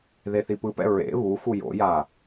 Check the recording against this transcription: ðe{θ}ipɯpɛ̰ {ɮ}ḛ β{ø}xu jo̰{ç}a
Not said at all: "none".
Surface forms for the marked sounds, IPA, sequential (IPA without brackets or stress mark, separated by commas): θ, ɹ, u, j